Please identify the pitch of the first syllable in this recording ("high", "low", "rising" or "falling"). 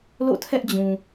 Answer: falling